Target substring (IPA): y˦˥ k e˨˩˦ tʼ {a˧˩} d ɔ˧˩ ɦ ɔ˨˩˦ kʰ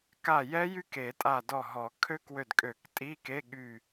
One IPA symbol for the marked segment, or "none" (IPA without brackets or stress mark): a˧˩